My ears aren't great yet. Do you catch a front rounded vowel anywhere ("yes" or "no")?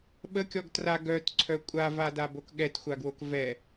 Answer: yes